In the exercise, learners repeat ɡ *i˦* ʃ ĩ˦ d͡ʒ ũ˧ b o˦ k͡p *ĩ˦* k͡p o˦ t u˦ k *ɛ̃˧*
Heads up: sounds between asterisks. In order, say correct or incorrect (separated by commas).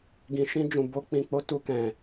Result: incorrect, incorrect, correct